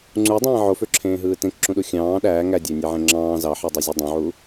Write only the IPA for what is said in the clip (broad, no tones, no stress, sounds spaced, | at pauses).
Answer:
ŋ͡ǀ u dˤ ẽː ʕ o f ø ǁʰ ẽː ɦ ɯː t ẽ k ǁ ũ ɗ u xʲ ɑ̃ː ɗ æː ŋ æ dʲ æ nʲ e ʕ ẽ ŋ͡ǁ ɑ̃ː z ɑ ħ i dˤ i zʲ u dˤ õ ʕ u